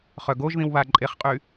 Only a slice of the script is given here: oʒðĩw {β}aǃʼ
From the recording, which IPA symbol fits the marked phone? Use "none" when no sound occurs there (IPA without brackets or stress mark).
β